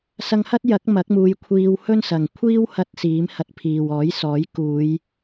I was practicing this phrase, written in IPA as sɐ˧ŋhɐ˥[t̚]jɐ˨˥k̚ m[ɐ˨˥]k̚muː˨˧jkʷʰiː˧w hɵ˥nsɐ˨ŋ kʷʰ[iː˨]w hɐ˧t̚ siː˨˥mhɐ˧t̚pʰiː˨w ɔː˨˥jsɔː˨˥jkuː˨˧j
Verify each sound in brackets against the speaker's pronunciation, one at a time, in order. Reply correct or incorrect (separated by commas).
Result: correct, correct, incorrect